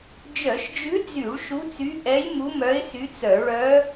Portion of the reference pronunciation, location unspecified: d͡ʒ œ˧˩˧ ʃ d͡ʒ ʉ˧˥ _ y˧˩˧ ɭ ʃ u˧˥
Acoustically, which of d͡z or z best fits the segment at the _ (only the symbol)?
d͡z